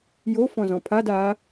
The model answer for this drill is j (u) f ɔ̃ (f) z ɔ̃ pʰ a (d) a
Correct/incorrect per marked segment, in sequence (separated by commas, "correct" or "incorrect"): incorrect, incorrect, correct